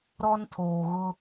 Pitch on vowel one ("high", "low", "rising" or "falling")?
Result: high